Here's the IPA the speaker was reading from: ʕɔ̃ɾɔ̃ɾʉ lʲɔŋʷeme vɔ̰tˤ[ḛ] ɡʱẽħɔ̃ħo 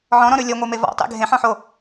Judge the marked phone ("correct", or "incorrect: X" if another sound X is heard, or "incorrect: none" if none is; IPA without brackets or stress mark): correct